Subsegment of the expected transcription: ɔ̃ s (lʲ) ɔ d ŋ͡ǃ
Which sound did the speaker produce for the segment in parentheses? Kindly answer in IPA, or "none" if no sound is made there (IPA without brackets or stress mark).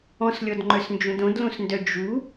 lʲ